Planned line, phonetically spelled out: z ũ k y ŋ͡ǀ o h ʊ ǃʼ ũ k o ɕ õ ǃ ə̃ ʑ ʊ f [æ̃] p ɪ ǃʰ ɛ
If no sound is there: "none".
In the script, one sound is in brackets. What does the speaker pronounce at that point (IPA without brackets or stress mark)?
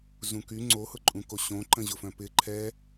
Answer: œ̃